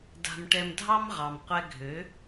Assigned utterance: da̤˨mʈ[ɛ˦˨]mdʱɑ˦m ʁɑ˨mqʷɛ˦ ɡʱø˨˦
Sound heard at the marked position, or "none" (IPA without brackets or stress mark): ɛ˨